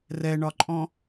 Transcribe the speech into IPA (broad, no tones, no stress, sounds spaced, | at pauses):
r ɛ ɳ ɒ ǃʼ ɔ̃